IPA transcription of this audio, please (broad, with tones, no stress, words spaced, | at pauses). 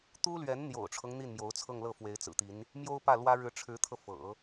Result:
t̪u˥lɥɛ˧˥nn̪jo̰˨˩ʊ̯ʈ͡ʂʰɤ˦ŋ n̪i˥˩nmjo˧˥ʊ̯t͡sʰɤ˥˧ŋ lɤ˥˩fwe˧˥ɪ̯t͡sɹ̩˨˩t̪i˧˥n | mjo˥ʊ̯pä˥˩lwä˥ ɻɻ̩˧˥ʈ͡ʂʰɻ̩˧˥t̪ʰɤ˧ fɤ̰˨˩˦